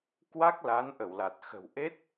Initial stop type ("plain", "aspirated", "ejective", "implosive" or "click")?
plain